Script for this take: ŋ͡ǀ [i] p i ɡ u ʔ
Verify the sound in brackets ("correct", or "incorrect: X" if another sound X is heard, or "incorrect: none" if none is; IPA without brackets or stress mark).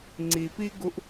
correct